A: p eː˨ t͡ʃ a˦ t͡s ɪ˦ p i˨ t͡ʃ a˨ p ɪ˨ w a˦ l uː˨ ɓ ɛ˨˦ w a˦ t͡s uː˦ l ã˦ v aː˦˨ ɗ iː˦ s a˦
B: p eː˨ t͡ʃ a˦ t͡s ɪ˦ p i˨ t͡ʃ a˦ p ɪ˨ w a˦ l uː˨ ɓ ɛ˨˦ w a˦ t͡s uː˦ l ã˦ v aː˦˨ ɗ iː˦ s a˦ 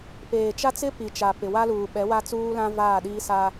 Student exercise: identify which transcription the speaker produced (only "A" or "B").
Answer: A